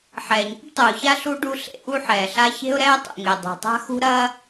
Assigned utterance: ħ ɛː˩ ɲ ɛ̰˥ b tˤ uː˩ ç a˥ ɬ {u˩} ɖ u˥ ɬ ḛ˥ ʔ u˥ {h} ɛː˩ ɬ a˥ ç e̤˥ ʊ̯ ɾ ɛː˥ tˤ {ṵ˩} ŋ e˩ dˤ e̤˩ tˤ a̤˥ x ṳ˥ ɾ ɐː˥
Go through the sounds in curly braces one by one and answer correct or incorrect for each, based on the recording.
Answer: incorrect, incorrect, correct

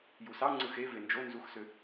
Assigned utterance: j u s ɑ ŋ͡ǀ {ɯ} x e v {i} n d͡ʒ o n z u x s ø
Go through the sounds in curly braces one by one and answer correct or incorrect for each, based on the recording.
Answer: correct, incorrect

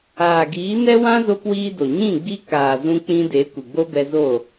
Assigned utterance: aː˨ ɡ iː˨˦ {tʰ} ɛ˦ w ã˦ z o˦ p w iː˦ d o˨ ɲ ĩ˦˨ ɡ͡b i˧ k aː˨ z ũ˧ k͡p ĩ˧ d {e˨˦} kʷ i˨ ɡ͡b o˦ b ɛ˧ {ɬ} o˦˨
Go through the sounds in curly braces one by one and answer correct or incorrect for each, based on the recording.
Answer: incorrect, correct, incorrect

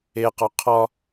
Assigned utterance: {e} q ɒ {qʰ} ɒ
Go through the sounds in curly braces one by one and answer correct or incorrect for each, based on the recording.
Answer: correct, correct

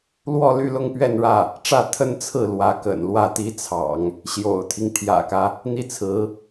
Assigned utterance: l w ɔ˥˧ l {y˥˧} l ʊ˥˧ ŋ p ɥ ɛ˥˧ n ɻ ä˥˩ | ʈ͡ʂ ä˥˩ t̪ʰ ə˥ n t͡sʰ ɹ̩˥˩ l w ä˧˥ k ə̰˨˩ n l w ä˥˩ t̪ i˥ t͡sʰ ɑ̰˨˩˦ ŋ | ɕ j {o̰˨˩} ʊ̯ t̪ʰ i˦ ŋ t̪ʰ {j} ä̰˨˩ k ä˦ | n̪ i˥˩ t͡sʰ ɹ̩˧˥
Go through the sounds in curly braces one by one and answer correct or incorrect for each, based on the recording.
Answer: correct, correct, correct

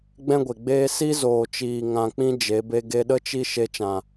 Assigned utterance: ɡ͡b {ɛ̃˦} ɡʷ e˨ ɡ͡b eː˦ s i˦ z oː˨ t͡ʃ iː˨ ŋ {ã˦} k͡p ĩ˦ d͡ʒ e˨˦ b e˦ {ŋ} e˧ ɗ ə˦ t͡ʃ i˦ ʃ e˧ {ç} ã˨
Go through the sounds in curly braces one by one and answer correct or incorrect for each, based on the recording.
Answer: correct, incorrect, incorrect, incorrect

